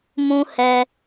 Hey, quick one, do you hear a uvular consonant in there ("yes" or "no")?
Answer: no